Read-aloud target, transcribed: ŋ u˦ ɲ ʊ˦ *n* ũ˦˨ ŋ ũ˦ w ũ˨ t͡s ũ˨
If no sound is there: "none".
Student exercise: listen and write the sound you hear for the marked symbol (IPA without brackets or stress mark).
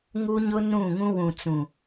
n